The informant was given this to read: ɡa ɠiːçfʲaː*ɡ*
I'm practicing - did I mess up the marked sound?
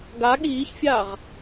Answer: yes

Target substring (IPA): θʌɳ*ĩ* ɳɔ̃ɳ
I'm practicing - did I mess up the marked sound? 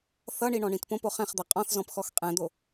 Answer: yes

